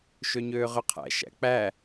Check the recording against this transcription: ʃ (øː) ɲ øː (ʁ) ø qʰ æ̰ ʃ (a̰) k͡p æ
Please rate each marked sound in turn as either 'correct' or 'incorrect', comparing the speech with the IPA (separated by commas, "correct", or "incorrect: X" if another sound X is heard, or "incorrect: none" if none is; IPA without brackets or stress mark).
incorrect: ø, correct, incorrect: æ̰